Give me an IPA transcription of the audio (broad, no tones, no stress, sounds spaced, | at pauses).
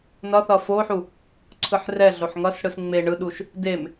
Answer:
n ʌ θ ʌ f o ħ u | ǀʰ ɯ ħ r ɛ ɮ o ħ ŋ ʌ s ɽ ɯ s ŋ͡m e ɳ ɯ ɗ u ʃ | d e m